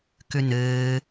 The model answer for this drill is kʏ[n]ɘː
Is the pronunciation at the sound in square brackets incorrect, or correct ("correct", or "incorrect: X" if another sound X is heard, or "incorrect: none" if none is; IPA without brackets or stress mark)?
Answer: correct